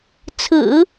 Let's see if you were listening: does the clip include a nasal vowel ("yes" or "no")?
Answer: no